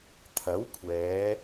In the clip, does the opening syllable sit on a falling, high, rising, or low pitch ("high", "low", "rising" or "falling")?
rising